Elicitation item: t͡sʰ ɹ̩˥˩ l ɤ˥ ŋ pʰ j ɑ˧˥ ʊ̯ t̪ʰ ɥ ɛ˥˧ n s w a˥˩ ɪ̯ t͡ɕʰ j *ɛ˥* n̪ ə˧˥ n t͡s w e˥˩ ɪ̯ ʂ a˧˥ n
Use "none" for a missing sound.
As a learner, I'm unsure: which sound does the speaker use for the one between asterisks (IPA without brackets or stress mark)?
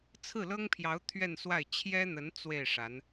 ɛ˥